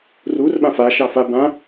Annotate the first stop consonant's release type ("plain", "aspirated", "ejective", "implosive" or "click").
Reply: implosive